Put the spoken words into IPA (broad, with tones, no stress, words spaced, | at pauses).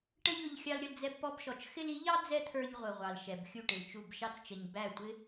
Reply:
ʈə˦ʎʊ˧ʎ xʲɑ˧lɾʲʌ˧l d͡zɛ˧bpɔ˧bʃɔ˨t͡ʃ xɪ˧li˨˦ʎɑ˦ d͡zɛ˦t̪ʰə˞˧ɲ ʁʷə˨ʁʷɑ˨l ʃɛ˨bxʲu˦˨ʈɪ˨lt͡ʃu˦˨b ʃɑ˧t͡st͡ʃə˨ɲ bæ˦˨tʷɪ˦